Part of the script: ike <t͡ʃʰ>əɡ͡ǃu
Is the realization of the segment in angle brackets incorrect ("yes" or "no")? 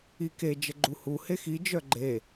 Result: yes